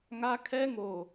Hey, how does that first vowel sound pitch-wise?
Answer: high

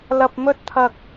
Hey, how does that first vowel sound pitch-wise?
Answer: low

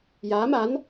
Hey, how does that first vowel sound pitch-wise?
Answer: rising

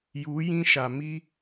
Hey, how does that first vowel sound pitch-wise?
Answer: rising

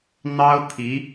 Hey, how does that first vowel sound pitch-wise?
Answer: high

